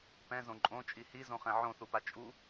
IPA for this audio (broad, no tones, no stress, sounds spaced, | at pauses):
p ɛ̃ z õ ǃʼ õ t͡ʃʼ i h i z õ χ ɛ̃ ʕ õ θ u p a t͡ʃʼ u